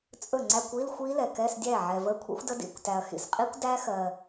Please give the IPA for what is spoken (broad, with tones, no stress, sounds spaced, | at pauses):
t͡sʼ ɵ˥˩ ŋ͡ǀ æ˧˥˧ kʷ i˧˥˧ l xʷ i˦˥ l ɛ˨ k ɛ˧˥˧ s dʲ æ˥˩ ʕ ɛ˨ v ə˧˥˧ kʷʰ ḭ˦˥ xʷ d ə˦˥ d ḭ˧˥˧ kʷ t æ˨ ɐ̯ x ḭ˨ s qʼ i˦˥ kʷ d æ˦˥ x ɜ˨